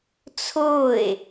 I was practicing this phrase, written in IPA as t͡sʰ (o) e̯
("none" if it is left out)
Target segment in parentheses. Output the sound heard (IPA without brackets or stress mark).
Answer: o